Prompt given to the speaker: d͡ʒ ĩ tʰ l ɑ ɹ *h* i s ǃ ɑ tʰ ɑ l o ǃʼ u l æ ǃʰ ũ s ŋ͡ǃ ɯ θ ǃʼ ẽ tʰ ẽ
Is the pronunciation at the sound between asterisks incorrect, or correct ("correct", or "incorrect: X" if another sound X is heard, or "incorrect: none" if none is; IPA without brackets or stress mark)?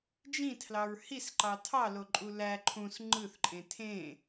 correct